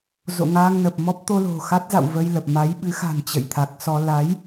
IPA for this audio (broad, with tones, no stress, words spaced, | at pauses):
zo̰˧˨ŋaː˧ŋnə˨˩p̚ mɔ˦˥p̚t̪o˧ lo̤˨˩ xa˦˥t̚za̰˧˨w və˧jlə˨˩p̚ ma˨˦jɓɨ˨˦xa̤˨˩n t͡ɕə̰˧˨jt̪ʰa˨˩k̚sɔ˧ la˨˦j